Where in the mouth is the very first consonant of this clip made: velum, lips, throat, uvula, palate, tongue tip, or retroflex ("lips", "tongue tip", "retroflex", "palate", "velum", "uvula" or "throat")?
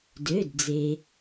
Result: tongue tip